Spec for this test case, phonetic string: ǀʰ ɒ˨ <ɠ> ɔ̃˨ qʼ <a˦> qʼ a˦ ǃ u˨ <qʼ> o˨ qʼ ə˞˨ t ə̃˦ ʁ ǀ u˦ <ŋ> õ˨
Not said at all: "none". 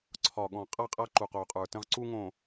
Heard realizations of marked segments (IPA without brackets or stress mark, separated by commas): ɠ, a˦˨, q, ŋ